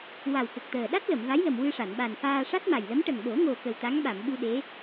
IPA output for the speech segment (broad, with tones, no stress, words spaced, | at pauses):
wa˨˩w kə˨˩k̚t̪əː˨˩ ɗa˦˥t̚ lə˨˩˨mva˧˥jlə˨˩m wɨ˧ʂa˨˩˨n ɓa˨˩nfaː˧ ʂa˦˥t̚ma˨˩jlə˧˥m ʈə˨˩ŋɓo˨˩˦ŋo˨˩ kə˨˩wt̪a˧˥ŋɓa˨˩˨mɓu˧ ɗe˧˥